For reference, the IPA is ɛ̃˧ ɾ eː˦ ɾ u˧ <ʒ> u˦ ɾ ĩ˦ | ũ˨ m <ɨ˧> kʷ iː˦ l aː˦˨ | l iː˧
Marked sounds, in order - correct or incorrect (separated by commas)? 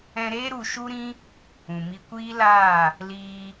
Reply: incorrect, incorrect